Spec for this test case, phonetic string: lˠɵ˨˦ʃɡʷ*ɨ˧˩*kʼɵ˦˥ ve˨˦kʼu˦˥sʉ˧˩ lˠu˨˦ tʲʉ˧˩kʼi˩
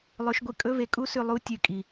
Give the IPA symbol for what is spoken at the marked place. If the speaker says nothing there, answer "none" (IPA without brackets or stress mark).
ɨ˧˩